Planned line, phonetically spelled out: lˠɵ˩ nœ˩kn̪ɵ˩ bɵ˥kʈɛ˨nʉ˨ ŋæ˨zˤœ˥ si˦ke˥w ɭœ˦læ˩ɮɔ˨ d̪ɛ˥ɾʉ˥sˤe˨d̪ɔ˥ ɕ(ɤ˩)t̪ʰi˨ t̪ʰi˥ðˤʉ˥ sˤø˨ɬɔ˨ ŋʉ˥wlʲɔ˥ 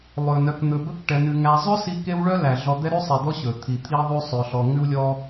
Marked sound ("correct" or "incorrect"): incorrect